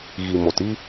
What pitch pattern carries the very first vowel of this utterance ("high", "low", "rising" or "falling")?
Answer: low